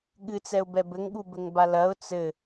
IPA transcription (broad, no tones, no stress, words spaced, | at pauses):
ɠɨt͡sɛʊ̯bɛ bɘŋɠubɘŋba lɐʊ̯ t͡sɘ